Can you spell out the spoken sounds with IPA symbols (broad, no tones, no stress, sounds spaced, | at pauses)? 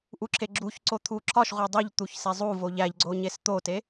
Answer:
ʔ u ǁʰ e ɡ͡ǁ u ç ǀ o t̪ʰ u ǁʰ ɒ ʃ ʁʷ e dˤ i ʎ t̪ u ç s e zˤ u v o ʎ æ ʎ ɡ͡ǀ o ɲ e s t̪ o t e